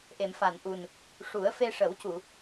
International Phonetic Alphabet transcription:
ʔ e˨˩˨ m f a˨˩˨ n ʔ u˨˩ n | ʂ u˨˩˦ ə̯ f e˧ ʂ ə˨˩˦ w c u˨˩˨

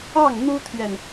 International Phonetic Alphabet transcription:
ɑ˥˩ ŋ n̪ u˥ t̪ʰ ɥ ɛ˨ n

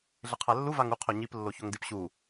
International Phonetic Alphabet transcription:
ɮ ɪ qʰ a lː u v a ŋ u qʰ o ɲ i p lː o ç o ŋ d i p ɕ u

